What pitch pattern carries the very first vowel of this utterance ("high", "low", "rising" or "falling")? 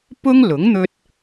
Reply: high